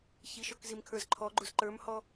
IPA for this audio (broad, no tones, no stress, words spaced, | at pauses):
çiʃɔk zimkʰə˞zǃʰɔɡ͡ǃuz ǃə˞mhɔ